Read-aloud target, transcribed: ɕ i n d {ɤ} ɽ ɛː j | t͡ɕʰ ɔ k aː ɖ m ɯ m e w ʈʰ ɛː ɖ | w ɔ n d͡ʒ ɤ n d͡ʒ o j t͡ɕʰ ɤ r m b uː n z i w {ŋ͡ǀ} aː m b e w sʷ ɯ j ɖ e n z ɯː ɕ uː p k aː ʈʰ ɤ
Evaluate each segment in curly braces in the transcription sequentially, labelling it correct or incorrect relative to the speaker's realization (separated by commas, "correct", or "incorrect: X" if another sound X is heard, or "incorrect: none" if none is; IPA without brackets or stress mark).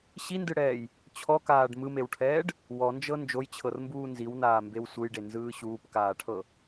incorrect: ɯ, incorrect: n